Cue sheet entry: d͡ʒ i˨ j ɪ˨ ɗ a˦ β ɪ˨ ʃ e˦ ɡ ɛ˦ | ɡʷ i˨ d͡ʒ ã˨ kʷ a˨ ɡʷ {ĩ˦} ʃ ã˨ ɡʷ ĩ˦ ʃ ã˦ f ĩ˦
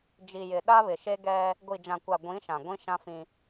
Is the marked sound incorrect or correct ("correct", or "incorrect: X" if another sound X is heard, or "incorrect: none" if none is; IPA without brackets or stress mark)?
incorrect: ĩ˨˦